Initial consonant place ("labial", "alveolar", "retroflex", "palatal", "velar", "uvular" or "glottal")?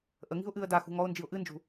glottal